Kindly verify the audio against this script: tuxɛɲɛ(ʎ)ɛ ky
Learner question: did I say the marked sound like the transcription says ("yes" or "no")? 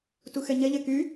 yes